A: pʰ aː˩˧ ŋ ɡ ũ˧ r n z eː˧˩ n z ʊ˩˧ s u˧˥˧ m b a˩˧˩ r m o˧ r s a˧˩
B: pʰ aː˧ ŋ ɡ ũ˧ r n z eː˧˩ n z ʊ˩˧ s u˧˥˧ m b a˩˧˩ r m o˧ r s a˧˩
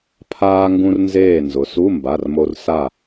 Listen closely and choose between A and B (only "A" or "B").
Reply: B